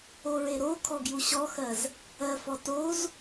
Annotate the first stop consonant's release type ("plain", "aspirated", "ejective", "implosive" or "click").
aspirated